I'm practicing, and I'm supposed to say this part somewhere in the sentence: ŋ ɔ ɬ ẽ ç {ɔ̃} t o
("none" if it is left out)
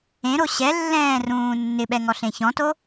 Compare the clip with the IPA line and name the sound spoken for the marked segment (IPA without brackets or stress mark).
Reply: ɔ̃